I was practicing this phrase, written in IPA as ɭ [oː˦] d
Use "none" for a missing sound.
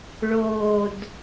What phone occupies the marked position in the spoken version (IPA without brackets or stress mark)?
oː˨